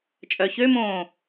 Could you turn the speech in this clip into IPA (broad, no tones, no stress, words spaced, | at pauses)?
t͡ʃʼœçømõː